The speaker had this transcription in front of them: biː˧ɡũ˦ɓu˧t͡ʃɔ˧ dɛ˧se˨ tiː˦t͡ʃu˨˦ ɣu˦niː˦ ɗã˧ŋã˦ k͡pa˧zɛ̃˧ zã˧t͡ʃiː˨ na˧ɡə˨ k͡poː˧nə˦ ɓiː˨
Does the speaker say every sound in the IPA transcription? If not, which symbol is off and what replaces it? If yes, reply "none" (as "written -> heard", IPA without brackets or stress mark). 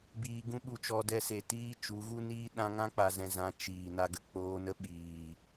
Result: none